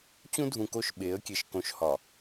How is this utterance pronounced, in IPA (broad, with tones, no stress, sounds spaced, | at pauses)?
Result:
t͡ɕ ũ˦ dʱ ũ˨ k o˦˨ ʃ ɓ e˨˦ ə̯ kʲ e˨ ʃ k õ˨ ʃ h ɒ˨